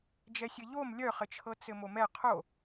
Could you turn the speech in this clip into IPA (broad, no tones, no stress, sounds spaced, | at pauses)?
d͡ʒ ɛ sʲ ɘ ʎ o m lʲ œ χ ɘ t͡ʃʰ ɤ t͡s ɘ m o m ɛ qʰ o